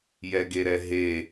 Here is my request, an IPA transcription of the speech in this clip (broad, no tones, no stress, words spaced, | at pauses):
jɛɡeɾɛɦe